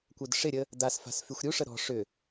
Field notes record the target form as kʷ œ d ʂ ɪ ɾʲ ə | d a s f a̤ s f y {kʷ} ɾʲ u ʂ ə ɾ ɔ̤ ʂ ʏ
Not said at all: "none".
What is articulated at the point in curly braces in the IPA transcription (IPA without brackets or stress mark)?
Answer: xʷ